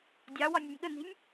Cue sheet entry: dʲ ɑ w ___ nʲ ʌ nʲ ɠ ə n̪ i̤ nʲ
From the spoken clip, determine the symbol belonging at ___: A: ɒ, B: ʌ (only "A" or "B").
A